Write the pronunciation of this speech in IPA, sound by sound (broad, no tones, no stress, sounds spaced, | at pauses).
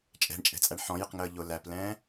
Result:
t͡ʃʼ ɛ̤ ɳ t͡ʃʼ ɛ̤ t͡sʼ æ ɳ ħ ɔ̃ j ɪ q ŋ əː ʎ ʊ l æ p l ɛ̃ː